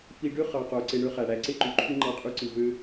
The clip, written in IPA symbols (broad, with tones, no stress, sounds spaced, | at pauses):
f i˧ ɖ ø˦ χ ɑ˨ q o˨ ǀ e˧ ɳ ø˦ χ æ˨ ɽ æ˨ ǀ e˦ ǃ y˨ ǃʰ y˦ ŋ͡ǃ ɑ˦ qʼ y˦ ǀ ɯ˧ v ø˦